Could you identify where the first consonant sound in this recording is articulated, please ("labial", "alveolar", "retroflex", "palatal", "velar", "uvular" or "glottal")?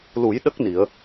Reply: alveolar